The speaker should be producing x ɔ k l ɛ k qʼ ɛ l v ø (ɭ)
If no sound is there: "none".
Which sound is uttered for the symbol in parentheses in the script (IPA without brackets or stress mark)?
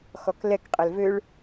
ɭ